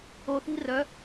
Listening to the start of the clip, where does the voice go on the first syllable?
low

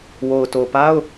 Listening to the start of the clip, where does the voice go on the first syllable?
low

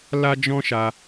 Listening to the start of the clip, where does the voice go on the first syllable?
high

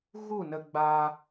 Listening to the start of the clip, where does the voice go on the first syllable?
falling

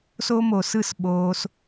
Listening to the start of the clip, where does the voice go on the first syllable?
high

